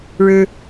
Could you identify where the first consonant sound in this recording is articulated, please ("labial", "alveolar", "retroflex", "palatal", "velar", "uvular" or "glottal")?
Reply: retroflex